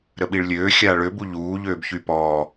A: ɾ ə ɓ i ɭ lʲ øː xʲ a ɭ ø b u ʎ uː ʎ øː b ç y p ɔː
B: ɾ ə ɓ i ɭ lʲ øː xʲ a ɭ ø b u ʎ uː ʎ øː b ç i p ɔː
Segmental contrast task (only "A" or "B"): A